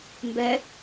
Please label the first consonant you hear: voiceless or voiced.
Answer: voiced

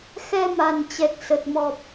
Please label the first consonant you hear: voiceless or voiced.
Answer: voiceless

